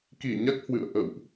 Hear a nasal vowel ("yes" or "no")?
no